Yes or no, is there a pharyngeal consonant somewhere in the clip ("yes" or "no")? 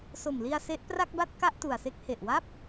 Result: no